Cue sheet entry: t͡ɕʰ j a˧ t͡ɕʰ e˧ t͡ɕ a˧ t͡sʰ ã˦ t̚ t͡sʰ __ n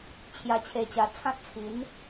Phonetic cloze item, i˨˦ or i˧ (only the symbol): i˨˦